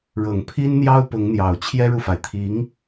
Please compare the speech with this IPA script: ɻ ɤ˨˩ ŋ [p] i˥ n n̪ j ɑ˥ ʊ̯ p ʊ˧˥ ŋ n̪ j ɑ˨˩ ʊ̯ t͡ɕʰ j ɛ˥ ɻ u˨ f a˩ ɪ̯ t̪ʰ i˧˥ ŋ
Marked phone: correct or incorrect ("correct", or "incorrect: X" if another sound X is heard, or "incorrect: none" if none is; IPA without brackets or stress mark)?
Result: incorrect: pʰ